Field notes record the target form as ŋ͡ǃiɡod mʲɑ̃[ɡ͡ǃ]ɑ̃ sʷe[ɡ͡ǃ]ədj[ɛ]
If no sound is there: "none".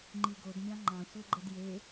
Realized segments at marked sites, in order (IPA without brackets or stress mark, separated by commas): ŋ͡ǃ, ɡ͡ǃ, e